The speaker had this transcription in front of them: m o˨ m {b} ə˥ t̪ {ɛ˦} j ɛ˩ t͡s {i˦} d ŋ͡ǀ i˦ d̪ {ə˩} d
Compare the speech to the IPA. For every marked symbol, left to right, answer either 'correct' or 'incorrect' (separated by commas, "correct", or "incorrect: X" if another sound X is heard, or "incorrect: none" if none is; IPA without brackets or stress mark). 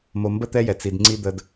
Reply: correct, correct, incorrect: i˨, incorrect: ə˦